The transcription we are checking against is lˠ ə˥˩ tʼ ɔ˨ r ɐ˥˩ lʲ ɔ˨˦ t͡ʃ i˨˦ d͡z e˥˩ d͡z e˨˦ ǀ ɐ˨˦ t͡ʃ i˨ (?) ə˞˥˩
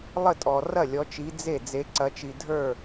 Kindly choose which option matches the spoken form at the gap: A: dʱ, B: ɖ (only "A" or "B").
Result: A